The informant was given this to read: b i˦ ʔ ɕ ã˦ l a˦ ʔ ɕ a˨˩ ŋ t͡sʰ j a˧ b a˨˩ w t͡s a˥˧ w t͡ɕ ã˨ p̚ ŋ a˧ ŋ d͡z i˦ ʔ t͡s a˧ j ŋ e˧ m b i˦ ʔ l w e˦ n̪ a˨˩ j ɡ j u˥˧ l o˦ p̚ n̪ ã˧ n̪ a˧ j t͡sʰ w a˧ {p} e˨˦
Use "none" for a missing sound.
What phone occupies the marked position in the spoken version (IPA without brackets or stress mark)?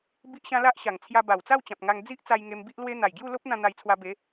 b